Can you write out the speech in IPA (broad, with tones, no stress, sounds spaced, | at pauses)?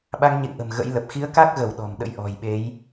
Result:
ɓ a˧ ŋ ɲ ḛ˧˨ ŋ ʔ ə̤˨˩ m ɣ ə̰˧˥ j l ə˨˩ p̚ x i˨˦ ə̯ k a˦˥ k̚ ɣ ə˧˩ w ɗ ɔ̤˨˩ m ɗ ə̰˧˥ j ʔ ɔ̤˨˩ j ɓ e˨˦ j